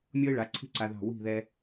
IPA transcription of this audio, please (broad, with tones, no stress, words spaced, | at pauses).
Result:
mʲɔ˥ɪ̯ɭa˩˥ ǀʰi̤˥ ǀa˧ðɑ̤˥˩ wi̤˥˩ðɛ˧